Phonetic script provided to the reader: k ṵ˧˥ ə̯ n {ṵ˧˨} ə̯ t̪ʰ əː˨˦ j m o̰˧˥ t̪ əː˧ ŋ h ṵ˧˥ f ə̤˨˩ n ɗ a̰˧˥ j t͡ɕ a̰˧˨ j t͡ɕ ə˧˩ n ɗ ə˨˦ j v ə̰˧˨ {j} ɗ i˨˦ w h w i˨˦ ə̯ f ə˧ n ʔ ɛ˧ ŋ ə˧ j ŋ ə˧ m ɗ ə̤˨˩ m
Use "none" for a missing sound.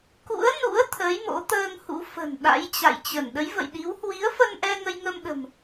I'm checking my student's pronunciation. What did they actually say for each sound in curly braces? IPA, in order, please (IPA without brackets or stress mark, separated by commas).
ṵ˧˥, j